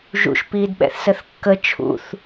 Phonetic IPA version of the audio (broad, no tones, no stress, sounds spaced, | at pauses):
ʒ ṵ ʃ p iː d ɓ ɛ̰ θ s ə θ kː ə t͡ʃʰ ṵ θ